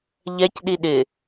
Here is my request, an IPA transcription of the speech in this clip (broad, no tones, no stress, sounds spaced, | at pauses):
ʎ ɛ c ɗ i ɗ ɪ